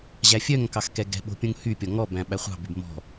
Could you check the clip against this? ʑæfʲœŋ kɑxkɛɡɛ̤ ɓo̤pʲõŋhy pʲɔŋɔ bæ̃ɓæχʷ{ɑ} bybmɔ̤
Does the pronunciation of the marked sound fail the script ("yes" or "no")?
yes